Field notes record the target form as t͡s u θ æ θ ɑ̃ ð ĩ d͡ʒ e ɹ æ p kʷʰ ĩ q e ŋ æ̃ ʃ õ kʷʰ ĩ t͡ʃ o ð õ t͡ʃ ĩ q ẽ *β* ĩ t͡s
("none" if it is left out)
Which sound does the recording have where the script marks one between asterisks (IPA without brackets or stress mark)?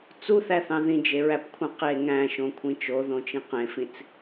f